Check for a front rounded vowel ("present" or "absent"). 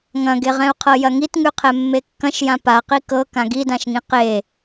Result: absent